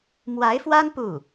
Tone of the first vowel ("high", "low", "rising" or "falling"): rising